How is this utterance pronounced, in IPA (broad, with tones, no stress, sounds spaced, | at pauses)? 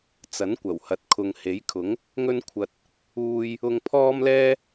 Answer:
t͡s ɐ˨˥ n kʷ ɐ˨˩ w h ɐ˨ t̚ kʰ ʊ˨ ŋ h e˨˥ j kʰ ʊ˨˥ ŋ | ŋ ɵ˥ n kʷʰ ɐ˧ t̚ | uː˧ j | ʊ˧ ŋ pʰ ɔː˥ m l ɛː˥